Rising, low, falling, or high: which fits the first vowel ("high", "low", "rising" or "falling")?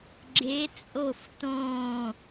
rising